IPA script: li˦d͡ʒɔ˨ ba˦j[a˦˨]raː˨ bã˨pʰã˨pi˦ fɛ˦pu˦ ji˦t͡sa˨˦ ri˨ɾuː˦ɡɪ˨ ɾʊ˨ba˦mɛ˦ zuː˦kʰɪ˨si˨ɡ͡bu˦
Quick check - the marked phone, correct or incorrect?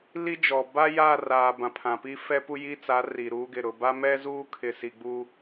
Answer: correct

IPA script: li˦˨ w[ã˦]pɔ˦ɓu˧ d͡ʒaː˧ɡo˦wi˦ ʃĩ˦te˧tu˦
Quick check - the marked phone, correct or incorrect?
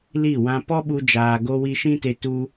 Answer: incorrect: ã˧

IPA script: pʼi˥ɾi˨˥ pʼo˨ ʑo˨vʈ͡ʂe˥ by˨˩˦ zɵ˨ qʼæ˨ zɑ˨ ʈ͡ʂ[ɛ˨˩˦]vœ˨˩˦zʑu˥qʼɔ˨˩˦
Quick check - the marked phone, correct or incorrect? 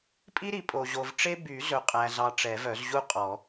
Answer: correct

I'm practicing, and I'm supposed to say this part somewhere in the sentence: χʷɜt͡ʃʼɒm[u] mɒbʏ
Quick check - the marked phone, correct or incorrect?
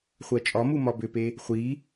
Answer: correct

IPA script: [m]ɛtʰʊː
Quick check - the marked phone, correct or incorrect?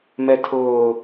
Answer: correct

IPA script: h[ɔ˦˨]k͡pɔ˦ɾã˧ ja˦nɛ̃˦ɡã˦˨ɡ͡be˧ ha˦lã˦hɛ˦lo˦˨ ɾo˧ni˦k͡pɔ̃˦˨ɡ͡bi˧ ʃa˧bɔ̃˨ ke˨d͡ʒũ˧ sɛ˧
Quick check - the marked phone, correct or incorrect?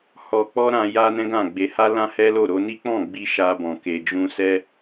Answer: incorrect: ɔ˧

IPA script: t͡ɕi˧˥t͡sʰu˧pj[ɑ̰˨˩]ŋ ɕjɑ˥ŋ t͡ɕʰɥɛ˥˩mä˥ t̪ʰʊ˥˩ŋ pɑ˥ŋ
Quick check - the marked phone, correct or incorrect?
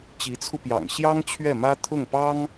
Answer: correct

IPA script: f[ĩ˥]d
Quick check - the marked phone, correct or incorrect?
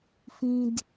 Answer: correct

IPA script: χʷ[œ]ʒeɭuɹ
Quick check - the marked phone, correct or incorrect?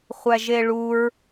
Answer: incorrect: æ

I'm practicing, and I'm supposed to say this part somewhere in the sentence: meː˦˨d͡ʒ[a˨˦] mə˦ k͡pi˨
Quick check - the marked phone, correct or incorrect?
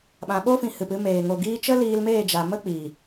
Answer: incorrect: a˨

